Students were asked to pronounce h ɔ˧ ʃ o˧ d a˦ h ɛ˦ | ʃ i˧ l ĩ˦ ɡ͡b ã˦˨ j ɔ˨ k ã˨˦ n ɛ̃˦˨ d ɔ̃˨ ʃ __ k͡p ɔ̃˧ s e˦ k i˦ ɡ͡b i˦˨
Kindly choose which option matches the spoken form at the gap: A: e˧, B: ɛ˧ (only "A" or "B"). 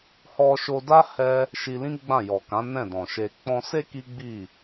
A